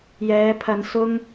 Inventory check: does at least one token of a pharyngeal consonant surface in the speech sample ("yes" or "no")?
no